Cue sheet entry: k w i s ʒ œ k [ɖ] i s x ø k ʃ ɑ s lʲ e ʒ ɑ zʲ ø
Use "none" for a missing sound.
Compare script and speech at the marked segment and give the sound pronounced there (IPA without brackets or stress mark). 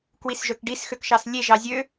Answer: ɖ